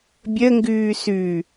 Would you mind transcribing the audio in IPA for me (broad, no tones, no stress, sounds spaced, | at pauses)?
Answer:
bʲ ə ŋ ɡ ʉː s ʉ